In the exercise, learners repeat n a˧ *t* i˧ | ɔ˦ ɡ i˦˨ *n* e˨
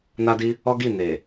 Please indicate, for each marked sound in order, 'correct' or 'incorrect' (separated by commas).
incorrect, correct